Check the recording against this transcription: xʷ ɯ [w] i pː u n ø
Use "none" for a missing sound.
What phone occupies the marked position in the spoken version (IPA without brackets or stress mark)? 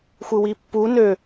w